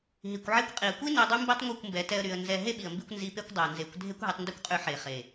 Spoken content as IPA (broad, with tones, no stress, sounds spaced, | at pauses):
ɦ i˨ kʷ ʕ e˦ kʷ qʼ i˨ ə̯ kʷ i˦ n e˧ dˤ y˦ m b i˦ tˤ ŋʷ i˦˨ kʷ m b ɛ˨˦ t ɛ˧ ə̯ ɾ y˨ ə̯ n z ɛ˦ ɦ e˦ ɓ i˨ ə̯ m b i˧ kʷ n z i˧ p e˦ kʷ dˤ ɛ˨ ə̯ n z e˨˦ kʷ dʱ e˦ kʷ ɦ y˧ tˤ n d y˦ kʷ qʼ y˧ ħ e˨ χ e˨